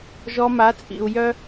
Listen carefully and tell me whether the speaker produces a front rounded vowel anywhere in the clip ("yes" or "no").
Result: yes